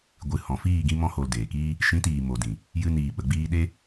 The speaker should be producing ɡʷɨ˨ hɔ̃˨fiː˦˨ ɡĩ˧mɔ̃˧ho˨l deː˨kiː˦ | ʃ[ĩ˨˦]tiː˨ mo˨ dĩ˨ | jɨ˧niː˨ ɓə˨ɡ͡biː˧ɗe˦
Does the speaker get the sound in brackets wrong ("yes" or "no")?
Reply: no